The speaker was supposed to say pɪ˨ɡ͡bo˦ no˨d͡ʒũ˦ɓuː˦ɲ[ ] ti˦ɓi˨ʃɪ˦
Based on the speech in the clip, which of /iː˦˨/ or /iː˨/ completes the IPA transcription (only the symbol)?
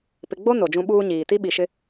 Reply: iː˨